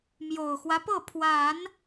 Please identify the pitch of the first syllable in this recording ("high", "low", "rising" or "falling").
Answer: low